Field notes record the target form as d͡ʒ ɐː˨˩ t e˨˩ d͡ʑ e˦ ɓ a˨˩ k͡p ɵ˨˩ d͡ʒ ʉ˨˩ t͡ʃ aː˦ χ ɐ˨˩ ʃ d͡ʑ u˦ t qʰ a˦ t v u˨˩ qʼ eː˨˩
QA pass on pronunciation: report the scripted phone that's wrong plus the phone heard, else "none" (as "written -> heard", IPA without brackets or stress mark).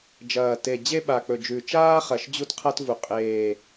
none